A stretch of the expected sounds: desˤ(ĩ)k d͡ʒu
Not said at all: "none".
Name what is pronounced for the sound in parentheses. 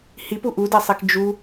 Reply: i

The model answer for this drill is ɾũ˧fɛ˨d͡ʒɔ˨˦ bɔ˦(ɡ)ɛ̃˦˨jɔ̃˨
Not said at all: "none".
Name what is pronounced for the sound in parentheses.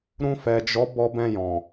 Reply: b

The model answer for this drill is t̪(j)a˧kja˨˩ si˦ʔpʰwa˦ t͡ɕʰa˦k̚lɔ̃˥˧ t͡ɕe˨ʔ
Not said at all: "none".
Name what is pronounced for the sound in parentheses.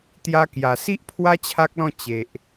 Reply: j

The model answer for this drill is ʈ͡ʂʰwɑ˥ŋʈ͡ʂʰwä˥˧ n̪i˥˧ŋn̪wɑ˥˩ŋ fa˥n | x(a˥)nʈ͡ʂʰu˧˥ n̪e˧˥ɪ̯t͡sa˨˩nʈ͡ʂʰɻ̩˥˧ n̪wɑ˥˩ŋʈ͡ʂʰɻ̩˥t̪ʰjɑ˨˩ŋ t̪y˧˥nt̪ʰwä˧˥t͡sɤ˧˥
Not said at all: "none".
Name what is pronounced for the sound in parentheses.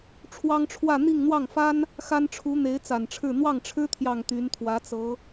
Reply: a˥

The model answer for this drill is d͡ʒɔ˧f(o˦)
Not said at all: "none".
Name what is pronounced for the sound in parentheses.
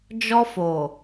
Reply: o˨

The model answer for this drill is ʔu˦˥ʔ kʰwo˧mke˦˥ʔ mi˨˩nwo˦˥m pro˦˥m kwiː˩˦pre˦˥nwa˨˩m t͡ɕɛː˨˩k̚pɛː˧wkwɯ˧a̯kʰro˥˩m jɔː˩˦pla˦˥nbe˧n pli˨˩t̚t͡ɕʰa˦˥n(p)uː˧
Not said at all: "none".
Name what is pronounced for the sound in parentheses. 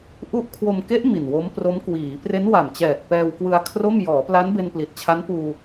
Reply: p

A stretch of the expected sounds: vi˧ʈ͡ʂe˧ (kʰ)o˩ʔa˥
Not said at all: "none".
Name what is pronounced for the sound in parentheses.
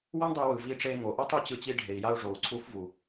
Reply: ŋ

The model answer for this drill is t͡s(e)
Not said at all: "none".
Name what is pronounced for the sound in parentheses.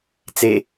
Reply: e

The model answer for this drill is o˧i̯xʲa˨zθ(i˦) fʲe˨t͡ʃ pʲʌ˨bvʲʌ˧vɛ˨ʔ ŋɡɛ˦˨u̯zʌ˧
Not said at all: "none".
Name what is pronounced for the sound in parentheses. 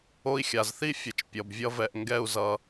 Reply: i˦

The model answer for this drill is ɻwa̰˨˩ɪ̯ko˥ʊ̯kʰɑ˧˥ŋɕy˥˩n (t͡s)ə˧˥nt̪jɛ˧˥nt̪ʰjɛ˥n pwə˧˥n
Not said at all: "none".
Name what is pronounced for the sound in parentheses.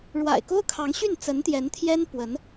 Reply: t͡s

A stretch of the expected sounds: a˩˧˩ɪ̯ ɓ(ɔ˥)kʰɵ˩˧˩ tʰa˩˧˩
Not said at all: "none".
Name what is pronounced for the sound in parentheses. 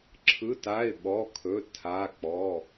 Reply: ɔ˩˧˩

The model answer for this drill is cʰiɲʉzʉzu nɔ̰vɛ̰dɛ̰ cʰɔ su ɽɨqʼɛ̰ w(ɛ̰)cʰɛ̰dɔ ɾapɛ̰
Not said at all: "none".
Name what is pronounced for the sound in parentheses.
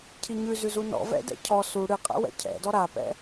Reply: ɛ̰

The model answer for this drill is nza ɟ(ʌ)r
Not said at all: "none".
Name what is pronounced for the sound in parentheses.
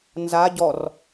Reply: ɔ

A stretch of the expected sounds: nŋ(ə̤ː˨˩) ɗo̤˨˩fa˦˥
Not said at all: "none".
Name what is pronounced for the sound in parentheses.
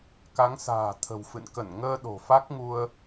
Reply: əː˧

